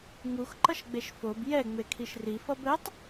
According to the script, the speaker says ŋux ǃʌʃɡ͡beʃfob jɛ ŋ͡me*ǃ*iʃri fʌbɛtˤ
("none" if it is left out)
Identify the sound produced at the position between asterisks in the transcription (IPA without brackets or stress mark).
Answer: kʰ